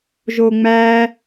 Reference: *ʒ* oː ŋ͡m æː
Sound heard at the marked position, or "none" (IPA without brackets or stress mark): ʒ